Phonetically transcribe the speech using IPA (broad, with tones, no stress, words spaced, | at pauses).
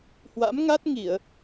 hwa̰˧˥m ŋa˦˥t̚ŋi˧˩˨ə̯